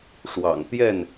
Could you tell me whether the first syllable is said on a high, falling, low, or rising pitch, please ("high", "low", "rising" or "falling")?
low